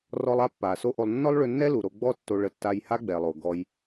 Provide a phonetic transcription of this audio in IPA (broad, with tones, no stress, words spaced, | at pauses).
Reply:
rɔ˧lˠ a˥pːa˩so˥ʔo˧lˠ nːɔ˥lˠɭʏ˧nːɛ˥ lu˩ɾo˧ɡ͡bɔ˥ tːo˧ɭə˧ tːa˧jha˥ɡ͡bɛ˩lˠo˩ ɡɔ˧j